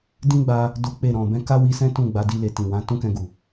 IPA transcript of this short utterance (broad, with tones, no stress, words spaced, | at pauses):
dĩ˦ɡ͡ba˧ | do˦k͡pe˦˨ ɾɔ̃˨bɛ̃˧ ka˦wi˧sɛ̃˦ tũ˦˨ɡ͡ba˨˦di˧le˨ tĩ˨wã˨˦ tũ˦kɛ̃˧ɡu˨